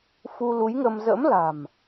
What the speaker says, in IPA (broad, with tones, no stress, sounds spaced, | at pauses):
f u˧ l u˨˦ j ŋ ə˧ m z ə̰˧˥ m l a̤˨˩ m